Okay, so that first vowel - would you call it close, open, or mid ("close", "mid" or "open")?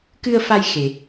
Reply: close